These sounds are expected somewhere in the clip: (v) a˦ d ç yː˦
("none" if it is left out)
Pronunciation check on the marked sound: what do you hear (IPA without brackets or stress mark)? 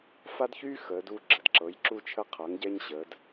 f